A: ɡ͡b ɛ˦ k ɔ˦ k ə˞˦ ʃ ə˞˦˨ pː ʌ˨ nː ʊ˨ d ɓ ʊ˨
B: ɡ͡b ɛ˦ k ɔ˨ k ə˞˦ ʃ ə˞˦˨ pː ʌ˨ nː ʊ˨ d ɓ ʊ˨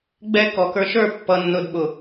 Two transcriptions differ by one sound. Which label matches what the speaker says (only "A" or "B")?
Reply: B